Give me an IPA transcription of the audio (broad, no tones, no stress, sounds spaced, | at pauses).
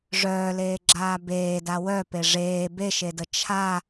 ʐ œː l eː ɡ͡ǁ aː b eː d a w œ p e ʐ eː b e ʃ e d ə t͡ʃʰ a